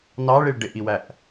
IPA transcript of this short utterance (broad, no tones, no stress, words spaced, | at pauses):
nɑɭiɭ ɖɪʔiwæʔ